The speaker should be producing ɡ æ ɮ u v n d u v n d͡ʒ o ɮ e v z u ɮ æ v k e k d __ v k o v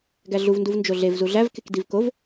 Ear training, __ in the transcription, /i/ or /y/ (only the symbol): i